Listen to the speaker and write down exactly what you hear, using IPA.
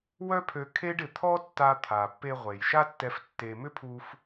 w œ˥ pʰ ø˧ kʰ e˥ ɖ ɪ˩ t̪ʰ ɔ˥ tː a˧ t̪ʰ a˩ pː e˧ ʁʷ e˩ j ʃ a˥ tː ɛ˧ f tː e˧ m ʏ˥ pʰ u˧ f

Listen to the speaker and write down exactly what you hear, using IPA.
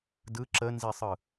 d ɯ ǁ ə n z i sˤ ɯ

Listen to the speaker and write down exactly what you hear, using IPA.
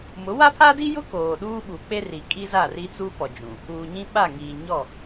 m ʊ˨˦ w a˦ pʰ a˦ d i˦ j ʊ˦ k oː˨ ɗ uː˦ ɓ u˨ k͡p e˦ r i˨ kʼ i˦ z a˦˨ r i˦ t͡s u˦ p ɔ˨ d͡ʒ ũ˨ | uː˨ ɲ ĩ˦ ɓ a˦˨ ŋ iː˨ ɲ ɔ˦˨

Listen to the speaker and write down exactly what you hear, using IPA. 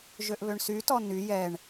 ʒ ø ʔ β ø ɳ s y t ɔ n y j ɛ ɳ

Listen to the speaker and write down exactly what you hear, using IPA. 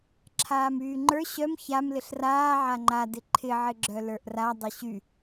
ǁʰ aː m yː ŋ͡ǃ ə˞ ɕ œ m ç a m l ɪ ɬ r aː ʕ a ŋ͡ǃ a d ɪ ǃʰ ɪ ʕ ɪ ɡ͡ǁ œ l ə˞ ʔ r a dˤ ɪ ɕ y

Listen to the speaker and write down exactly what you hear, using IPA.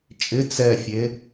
t͡ʃʼ ɪ t͡s ɛ fʲ e

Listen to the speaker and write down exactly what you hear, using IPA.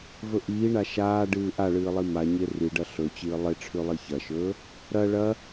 v ɵ ʔ iː ɳ a ʃ aː ɖ ɨː ʔ a ɭ ɨː lˠ i m a ɲ e r i ɖ ɐ ɬ ɵ t͡ɕ ɨː lˠ e ʈ͡ʂʰ ʉ lˠ i ç ɐ ʃ ɵː | ɾ ɐ ɭ ɐ

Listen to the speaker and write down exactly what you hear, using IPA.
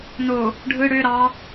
n o | ɖʱ ɯ ɽ ø ɾ ɑ

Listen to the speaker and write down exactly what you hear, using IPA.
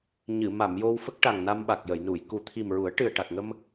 ɲ ɨ˨˩˨ m a˨˩˨ m j o˧ w f ə˦˥ k̚ ʈ a˨˩ ŋ n a˧ m ɓ a˨˩ k̚ j ə˨˩˨ j n u˨˩˨ j k u˨˩ t̪ʰ i˨˩ m ɹ u˨˩˦ ə̯ ʈ ɨ˨˩ ə̯ ʈ a˨˩ k̚ ŋ ə˧ m

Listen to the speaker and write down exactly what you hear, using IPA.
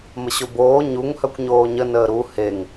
m ə ɕ o b oː ɲ u ŋ h œ kʷ ɲ oː ɲ ə n əː ɾ u h e ŋ

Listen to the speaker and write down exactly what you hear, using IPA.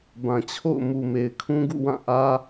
b ã˨ t͡ɕʰ o̰˦˨ ʊ̯ m u˨ m e˨ ɪ̯ kʰ ũ˦ ɡ ṵ˦˨ w ã˦˨ ʔ ä˦

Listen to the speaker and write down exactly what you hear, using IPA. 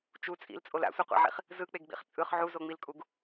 t͡ʃ u t͡sʼ ḭ l t͡sʼ o l a̰ sʷ e qʷ a̰ ʕ ḭ χ | z ɯ k͡p e ɡ ɡ͡b ḭ χ t͡sʼ ɯ χ ʕ u z o ŋ͡m i l kʼ u ɡ

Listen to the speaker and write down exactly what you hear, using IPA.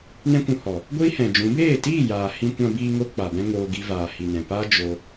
n ɛ̃˦ kʷ ũ˧ h ɔ˨ | ɡʷ iː˦ h ɛ̃˨ d͡ʒ ũ˨˦ b eː˦˨ t iː˦˨ j aː˨ h ĩ˧ kʷ ã˧ b iː˧ ŋ o˧ k͡p a˨ b ɛ̃˧ ŋ oː˧ ɡ i˧ v aː˨ h i˨ n ɛ̃˨ p a˦ d͡ʒ o˧

